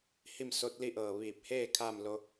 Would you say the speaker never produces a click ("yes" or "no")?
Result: yes